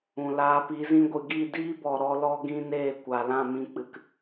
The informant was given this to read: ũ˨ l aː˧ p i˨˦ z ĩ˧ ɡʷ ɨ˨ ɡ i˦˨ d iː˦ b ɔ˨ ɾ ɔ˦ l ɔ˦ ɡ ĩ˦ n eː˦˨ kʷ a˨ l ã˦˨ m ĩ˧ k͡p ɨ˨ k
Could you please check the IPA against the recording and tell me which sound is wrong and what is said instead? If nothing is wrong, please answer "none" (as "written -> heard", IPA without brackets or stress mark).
none